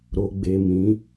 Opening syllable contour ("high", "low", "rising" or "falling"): low